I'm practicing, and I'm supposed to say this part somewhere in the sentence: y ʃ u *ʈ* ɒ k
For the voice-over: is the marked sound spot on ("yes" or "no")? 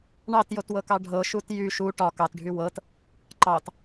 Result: yes